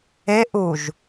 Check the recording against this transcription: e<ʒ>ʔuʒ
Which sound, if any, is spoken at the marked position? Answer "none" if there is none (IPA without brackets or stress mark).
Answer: none